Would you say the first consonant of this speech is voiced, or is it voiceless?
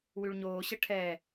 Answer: voiced